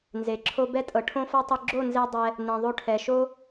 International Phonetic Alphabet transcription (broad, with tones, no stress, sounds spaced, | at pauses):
n z e˨ ǁʰ o˦ b ɛ˦ tʼ ɤ˨ ʈʰ õ˦ f ɔ˦ tˤ ɯ˧ ɡ͡ǁ o˦˨ n z e˧ dˤ ɛ˧ | n ɛ̃˨ ðˤ o˧ ʈʰ ɛ˨ ʃ o˦